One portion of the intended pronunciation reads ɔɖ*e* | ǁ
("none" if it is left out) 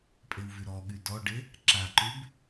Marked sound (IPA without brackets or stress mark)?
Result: e